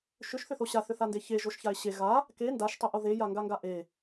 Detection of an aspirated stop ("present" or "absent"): absent